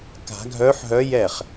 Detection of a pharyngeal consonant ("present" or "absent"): present